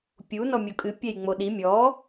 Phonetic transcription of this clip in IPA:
pʲ u n ɔ mʲ o kʼ ɨ pʲ ɛ j ŋ͡m o ɗ i mʲ ɔ

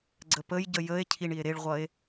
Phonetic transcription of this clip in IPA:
ɡ͡ǀ ə p ə j ɟ ə j ə e̯ cʰ i ɳ i e̯ ɾ e ɭ ʁʷ ʌ e̯

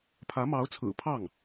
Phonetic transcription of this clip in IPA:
pʰ ä˧˥ m ɑ˧˥ ʊ̯ t͡sʰ ɹ̩˨˩ pʰ ɑ˥˩ ŋ

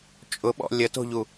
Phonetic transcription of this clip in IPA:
t͡ʃʼ ʊ ɓ ɔ̰ lʲ ə t o̤ ʎ u

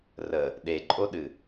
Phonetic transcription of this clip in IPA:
r ə | ɗ e ǃʼ o ɗ ɨ

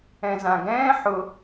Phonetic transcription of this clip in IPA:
ɛ̃ z ã ɡ ɛ̃ː ħ ʊ

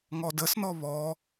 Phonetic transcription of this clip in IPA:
ŋ ɔ d ə s n ɔ β ɔ

